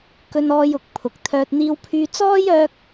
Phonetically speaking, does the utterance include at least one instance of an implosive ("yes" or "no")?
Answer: no